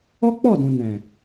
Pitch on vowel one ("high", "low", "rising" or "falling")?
high